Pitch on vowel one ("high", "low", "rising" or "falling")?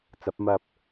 rising